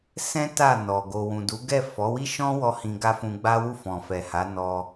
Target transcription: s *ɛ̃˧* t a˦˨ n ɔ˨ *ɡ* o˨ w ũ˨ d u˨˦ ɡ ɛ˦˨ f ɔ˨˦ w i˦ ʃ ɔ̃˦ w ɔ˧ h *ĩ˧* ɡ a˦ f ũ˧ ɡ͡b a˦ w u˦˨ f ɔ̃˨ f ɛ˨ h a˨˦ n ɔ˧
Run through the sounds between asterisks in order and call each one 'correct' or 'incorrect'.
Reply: incorrect, correct, correct

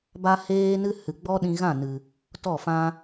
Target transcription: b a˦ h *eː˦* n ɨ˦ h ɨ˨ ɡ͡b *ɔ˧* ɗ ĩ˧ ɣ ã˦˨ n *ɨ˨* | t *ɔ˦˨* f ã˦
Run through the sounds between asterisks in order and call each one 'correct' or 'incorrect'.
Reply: correct, incorrect, correct, correct

